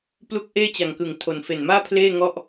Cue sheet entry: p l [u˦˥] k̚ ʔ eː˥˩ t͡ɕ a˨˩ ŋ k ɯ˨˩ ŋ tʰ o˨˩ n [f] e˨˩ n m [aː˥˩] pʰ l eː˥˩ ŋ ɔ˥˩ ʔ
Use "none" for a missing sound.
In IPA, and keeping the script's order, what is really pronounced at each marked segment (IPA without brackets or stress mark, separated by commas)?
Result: u˦˥, f, aː˥˩